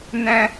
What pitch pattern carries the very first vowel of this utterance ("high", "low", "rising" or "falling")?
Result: high